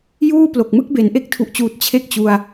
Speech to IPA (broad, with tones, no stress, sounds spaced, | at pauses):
j uː˥˩ p l o˨˩ k̚ m ɯ˥˩ k̚ b e˩˦ n ʔ e˥˩ k̚ tʰ u˨˩ ʔ t͡ɕ uː˨˩ t̚ t͡ɕʰ e˦˥ k̚ t͡ɕ u˧ a̯